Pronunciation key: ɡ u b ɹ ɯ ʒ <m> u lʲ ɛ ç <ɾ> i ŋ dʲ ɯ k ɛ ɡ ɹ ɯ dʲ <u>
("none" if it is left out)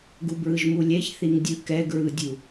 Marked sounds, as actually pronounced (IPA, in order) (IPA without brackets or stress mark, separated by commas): m, θ, u